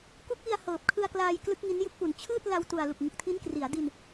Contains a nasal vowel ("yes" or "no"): no